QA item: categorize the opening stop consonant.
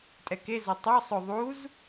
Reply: ejective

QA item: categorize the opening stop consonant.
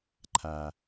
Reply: click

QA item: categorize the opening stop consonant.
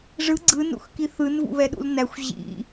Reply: click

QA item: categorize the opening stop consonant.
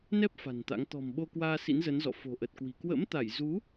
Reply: plain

